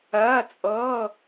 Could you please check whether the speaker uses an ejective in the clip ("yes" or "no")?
yes